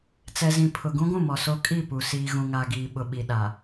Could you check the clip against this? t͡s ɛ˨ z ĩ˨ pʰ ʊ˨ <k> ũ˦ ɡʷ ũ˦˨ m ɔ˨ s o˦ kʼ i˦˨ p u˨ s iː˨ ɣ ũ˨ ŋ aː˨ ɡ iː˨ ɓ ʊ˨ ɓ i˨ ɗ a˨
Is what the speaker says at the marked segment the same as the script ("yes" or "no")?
no